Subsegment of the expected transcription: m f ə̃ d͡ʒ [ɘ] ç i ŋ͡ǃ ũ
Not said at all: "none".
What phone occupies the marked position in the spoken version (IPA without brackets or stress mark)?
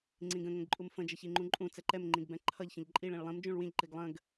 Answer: ɘ